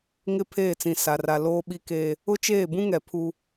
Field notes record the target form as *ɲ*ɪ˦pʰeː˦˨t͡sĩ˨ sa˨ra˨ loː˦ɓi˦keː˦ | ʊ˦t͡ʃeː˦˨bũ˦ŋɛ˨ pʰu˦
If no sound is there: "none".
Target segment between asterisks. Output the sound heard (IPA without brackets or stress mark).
ŋ